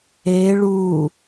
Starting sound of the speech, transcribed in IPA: e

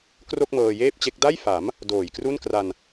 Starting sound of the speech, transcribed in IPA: k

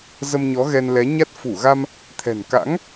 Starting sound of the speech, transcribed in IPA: z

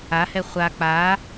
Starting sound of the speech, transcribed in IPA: a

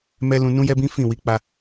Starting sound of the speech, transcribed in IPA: m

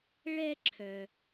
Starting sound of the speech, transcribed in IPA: ɭ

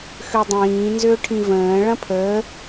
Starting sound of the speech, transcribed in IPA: x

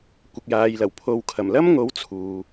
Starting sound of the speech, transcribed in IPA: kʷ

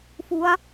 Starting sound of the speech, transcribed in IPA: f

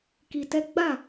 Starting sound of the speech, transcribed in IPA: k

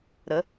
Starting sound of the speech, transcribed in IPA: ɾ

